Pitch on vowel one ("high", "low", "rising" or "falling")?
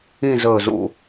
falling